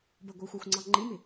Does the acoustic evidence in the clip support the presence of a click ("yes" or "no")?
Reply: yes